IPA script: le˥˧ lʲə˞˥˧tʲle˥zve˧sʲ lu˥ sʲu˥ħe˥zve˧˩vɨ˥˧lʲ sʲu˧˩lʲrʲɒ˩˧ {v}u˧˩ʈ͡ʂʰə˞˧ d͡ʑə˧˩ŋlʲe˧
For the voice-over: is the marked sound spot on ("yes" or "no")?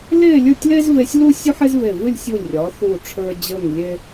no